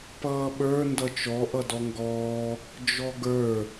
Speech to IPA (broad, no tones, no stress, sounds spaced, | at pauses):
p ʌː ɓ ə˞ n d ʌ t͡ʃ ɔ ʔ ʌ d ɔ ŋ ɡ ɔː | d͡ʒ ɔ ɡ ə˞